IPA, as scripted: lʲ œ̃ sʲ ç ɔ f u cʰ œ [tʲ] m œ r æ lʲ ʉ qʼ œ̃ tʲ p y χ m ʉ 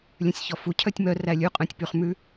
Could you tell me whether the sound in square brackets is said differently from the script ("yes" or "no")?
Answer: no